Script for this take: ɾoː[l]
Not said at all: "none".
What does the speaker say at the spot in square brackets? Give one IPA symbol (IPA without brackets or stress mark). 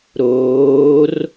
r